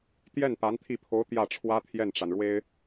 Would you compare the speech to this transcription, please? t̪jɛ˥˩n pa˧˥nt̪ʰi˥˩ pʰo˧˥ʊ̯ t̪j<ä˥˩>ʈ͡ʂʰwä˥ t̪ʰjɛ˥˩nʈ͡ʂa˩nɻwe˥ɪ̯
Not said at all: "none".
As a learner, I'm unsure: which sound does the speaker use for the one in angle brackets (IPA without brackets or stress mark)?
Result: ä˥˩